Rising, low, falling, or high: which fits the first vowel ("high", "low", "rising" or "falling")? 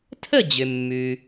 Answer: falling